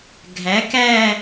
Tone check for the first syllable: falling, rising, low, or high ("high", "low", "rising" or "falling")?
rising